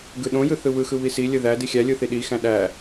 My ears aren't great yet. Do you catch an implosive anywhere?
yes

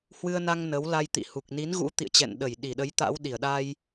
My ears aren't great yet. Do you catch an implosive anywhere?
yes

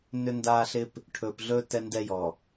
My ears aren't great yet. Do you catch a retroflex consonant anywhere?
yes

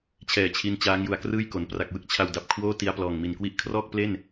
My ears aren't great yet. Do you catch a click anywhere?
no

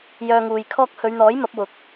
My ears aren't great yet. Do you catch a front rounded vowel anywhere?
yes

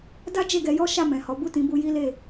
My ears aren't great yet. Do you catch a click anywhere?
no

